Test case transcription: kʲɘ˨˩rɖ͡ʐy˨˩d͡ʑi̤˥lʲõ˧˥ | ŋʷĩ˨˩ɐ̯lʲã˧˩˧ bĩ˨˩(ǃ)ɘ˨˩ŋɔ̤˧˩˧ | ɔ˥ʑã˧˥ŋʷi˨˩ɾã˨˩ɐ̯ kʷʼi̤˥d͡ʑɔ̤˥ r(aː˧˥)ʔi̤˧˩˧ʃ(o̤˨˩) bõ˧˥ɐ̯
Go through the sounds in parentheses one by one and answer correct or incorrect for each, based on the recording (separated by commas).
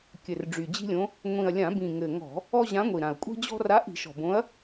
incorrect, incorrect, incorrect